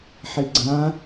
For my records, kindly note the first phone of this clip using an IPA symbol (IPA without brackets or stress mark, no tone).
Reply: ħ